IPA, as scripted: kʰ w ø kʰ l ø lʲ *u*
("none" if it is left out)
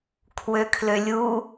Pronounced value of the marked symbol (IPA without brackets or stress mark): u